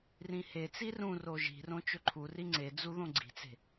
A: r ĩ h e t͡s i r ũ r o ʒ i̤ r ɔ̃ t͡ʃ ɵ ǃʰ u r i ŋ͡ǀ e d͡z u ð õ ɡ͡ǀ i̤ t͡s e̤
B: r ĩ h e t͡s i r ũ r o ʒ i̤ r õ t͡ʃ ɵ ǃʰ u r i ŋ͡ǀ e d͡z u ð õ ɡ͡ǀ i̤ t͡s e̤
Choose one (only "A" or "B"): B